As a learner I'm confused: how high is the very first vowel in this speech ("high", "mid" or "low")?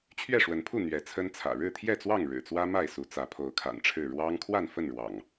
mid